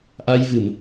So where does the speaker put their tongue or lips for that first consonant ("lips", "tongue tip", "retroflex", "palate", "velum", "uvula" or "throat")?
throat